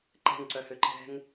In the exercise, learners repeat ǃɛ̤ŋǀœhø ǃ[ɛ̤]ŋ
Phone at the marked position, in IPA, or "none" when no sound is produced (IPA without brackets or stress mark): ɛ̤